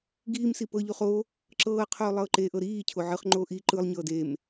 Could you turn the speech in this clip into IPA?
ɡiːmsi pɤʎuχ o | ǁɤːqʰoːlˠɤː ǃeʔɤ ɾiːcʰo ʕɯχŋ͡ǃoː ʔi ǃɯlˠɲɤːd em

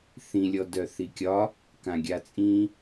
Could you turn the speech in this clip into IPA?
θĩlʲɔ dœθikʲɒ | kãɡʲat͡sʼĩ

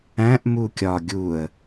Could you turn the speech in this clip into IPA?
æ̃ʔ mukʲɒ ɡʲuə̯

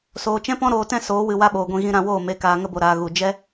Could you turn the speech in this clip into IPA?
soː˨t͡ʃɛ̃˦pɔ̃˦ ɾoː˧tɛ̃˦ soː˨˦wɨ˨ wa˦ɓoː˨ɡʷĩ˧ ɣĩ˧ɾã˧woː˦˨ me˨kaː˨ ŋə˧bo˨ɾaː˨ ɣu˨ d͡ʒɛ˦

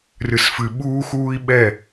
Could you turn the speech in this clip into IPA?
rɨ˨sfɨ˨ ɓuː˦xuː˦i̯ ɓɛ˦˨

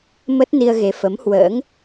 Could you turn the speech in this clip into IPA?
mə˦˥t̚ ni˧ə̯ɣe˨˦ fə˨˦mhwə̰ː˧˥ŋ

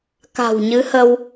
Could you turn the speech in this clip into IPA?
ka̤˨˩wɲɨ˨˦hə˧w

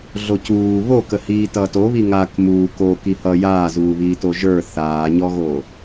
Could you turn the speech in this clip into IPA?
ɮocuː βokəhiː tʌːtoβi ŋak muːk oki hʌ jaːzuːβiːto ʒə˞ θaːɲɔɣo

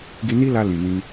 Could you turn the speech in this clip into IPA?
ɡi˧ni˦la˧ lĩ˨nĩ˧

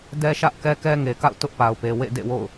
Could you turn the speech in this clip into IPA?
dɛ˦ʃä˦ʔ kɛ˦kɛ˦ŋe˨ka̰˦˨ʊ̯ tʊ˦ʔpa˨ʊ̯pe˨ wḛ˦˨dḛ˦˨wo̰˦˨ʊ̯

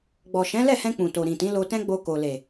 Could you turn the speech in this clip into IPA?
ɡ͡bɔ˨ ʃɛ̃˨˦lɛ˦˨hɛ̃˧ k͡pũ˨to˨ ɾĩ˨tĩ˨˦ lo˧tɛ̃˦ ɡ͡bo˧ko˨le˨

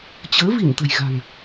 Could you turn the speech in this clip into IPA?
t͡ɕəː˨˦ vi˧˩nt̪ə̤˨˩jɣa̤˨˩ŋ

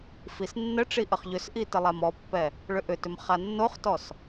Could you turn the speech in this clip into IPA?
fisnːəʈ͡ʂi ʔəχʎʏsʔi təlˠamɔpːɛ | ɭʏʔʏtʏm χanːoχtɔs

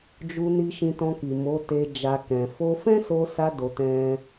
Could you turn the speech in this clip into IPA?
d͡ʒu˧ ni˧ʃĩ˧tɔ̃˧ki˨ mo˨˦te˧ d͡ʒa˧kɛ̃˨ fo˧fɛ̃˦so˧sa˧ do˧ tɛ̃˦

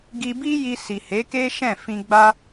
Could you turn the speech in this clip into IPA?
ɡi˧bi˦ji˧ si˨he˨˦ke˦ʃɛ̃˦˨ fĩ˧ɡ͡ba˦

